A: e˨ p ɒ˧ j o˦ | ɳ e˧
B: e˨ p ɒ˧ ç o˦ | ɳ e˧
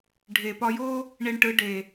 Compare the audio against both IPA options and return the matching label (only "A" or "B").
A